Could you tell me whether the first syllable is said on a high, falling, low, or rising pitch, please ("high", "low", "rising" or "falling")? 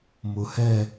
low